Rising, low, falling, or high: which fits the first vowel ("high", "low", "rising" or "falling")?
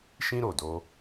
high